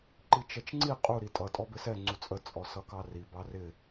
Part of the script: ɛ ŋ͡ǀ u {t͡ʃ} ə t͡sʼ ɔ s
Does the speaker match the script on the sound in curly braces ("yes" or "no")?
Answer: no